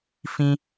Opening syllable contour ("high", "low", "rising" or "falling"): high